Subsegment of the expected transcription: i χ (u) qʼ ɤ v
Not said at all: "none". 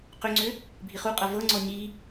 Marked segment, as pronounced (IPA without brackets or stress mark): u